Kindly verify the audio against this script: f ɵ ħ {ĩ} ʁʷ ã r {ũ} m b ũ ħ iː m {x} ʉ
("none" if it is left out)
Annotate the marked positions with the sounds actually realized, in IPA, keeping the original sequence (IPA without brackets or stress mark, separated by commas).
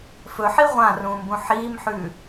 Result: i, ũː, ħ